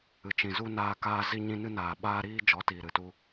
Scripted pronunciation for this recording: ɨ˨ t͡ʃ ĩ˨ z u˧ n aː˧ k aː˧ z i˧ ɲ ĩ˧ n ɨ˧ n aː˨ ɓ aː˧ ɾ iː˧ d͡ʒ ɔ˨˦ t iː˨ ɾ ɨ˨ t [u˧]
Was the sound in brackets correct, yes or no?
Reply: yes